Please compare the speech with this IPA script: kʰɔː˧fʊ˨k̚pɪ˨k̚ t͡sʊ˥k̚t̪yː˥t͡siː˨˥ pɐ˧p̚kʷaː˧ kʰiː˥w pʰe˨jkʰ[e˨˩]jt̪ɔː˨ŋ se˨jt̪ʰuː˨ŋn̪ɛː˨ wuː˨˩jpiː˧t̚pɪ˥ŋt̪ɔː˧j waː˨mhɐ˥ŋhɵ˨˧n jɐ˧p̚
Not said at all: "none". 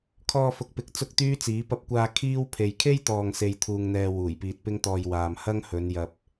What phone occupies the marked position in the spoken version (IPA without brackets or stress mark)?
e˥